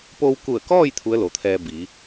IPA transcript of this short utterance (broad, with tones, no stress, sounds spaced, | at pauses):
p o˧ w k u˧˩ ə̯ k ɔː˥˨ j t̪ʰ u˧˥ ə̯ l o˩˧ t̪ʰ ɛː˧ b i˩˧